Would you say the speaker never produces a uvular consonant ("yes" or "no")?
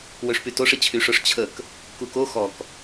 yes